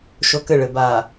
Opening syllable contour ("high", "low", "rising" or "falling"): high